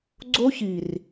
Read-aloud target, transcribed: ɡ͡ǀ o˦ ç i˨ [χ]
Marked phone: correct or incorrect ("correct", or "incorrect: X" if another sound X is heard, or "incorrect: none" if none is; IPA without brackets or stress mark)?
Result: incorrect: r